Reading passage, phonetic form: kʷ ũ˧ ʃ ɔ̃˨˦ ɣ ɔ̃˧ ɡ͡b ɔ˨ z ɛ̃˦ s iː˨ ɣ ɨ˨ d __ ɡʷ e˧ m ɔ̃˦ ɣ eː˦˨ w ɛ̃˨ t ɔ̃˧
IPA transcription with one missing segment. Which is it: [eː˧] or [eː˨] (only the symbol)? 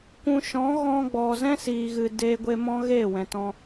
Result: eː˧